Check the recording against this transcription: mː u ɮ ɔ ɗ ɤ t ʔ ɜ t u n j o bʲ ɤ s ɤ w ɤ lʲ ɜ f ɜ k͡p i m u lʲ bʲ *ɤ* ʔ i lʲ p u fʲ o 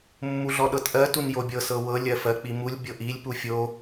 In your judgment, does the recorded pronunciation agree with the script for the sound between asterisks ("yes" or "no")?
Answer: yes